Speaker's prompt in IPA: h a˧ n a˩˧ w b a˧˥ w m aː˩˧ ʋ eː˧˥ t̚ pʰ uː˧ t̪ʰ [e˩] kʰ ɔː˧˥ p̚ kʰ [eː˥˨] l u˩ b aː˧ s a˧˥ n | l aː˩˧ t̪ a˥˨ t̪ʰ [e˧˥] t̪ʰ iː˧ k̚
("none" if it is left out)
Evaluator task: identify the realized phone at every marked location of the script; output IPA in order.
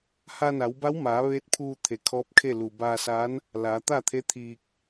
e˩, e˥˨, e˧˥

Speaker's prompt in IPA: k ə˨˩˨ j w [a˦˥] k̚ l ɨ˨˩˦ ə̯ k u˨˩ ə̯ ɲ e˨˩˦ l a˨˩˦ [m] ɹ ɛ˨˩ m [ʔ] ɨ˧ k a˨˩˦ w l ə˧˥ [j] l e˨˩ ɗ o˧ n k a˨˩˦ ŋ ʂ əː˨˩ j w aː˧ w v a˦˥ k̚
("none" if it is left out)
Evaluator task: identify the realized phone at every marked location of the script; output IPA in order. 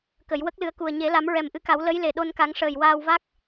ə˦˥, m, ʔ, j

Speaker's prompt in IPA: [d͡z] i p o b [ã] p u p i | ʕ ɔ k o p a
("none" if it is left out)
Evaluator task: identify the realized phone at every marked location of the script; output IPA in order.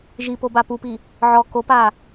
ʒ, a

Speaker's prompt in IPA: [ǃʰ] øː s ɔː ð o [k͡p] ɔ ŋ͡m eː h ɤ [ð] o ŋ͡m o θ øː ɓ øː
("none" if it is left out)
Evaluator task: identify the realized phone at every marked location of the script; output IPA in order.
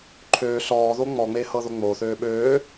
ǃʰ, ŋ͡m, ð

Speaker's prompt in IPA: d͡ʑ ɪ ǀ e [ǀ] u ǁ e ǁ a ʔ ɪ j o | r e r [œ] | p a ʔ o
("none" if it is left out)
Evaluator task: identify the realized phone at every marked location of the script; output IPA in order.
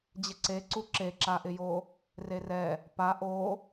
ǀ, ɛ

